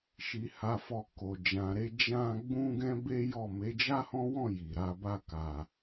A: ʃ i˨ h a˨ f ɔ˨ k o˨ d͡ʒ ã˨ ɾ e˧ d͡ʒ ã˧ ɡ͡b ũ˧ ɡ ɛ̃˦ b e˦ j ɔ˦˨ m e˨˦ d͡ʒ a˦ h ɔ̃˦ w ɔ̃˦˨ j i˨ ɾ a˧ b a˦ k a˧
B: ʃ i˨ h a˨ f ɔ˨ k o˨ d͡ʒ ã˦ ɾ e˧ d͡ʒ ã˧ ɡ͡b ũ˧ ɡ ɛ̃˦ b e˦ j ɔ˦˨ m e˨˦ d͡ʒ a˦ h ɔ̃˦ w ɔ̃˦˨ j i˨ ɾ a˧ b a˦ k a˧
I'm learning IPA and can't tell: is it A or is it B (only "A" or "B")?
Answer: A